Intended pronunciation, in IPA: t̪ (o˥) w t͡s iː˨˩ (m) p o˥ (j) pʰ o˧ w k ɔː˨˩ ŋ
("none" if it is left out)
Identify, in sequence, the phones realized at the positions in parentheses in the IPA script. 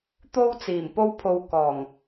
o˥, m, w

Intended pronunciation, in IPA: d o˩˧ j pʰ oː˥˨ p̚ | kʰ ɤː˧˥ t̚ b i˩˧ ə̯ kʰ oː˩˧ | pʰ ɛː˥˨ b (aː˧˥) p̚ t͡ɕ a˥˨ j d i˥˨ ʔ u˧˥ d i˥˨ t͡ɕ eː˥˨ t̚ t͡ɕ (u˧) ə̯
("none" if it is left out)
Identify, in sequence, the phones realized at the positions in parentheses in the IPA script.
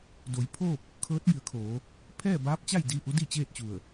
aː˧˥, u˧˩

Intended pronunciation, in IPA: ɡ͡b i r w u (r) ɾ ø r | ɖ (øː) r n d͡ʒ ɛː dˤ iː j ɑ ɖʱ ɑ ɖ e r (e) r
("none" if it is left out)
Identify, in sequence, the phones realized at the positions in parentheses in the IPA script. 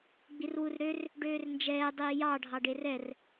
r, øː, ɛ

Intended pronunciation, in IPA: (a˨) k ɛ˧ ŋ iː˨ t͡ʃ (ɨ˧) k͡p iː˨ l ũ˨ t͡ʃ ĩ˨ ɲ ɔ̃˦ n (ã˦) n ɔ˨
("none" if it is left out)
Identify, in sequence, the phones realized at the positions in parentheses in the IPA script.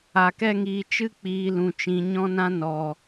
a˨, ɨ˧, ã˦

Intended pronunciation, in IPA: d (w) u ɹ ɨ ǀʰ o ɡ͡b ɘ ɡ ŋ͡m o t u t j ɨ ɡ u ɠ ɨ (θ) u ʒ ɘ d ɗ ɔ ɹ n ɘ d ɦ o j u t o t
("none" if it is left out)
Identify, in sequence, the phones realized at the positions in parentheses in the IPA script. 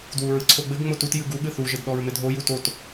w, θ

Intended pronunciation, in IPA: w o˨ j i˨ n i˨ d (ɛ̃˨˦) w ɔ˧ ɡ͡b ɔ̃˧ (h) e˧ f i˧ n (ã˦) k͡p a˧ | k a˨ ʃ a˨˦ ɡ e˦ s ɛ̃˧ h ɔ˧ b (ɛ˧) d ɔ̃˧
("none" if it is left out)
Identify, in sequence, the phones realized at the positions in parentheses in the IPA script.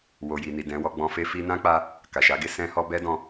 ɛ̃˨˦, f, ã˦, ɛ˦

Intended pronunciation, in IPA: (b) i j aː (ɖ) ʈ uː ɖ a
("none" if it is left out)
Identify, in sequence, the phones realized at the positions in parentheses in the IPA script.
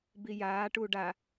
b, none

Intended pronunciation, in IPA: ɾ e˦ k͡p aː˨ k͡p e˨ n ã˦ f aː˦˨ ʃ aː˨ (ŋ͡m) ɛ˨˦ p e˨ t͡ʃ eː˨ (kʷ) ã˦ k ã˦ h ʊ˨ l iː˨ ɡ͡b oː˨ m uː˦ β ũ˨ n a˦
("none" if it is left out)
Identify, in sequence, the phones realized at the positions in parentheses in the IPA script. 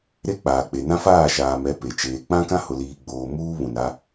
m, k͡p

